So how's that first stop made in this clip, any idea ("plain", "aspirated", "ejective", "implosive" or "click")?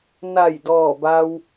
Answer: plain